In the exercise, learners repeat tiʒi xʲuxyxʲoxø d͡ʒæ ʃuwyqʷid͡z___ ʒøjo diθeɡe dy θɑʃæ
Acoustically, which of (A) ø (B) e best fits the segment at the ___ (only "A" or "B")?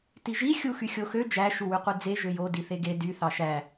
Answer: B